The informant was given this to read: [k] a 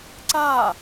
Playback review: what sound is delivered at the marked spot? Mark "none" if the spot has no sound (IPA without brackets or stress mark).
ǀ